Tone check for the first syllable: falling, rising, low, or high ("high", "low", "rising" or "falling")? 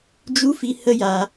high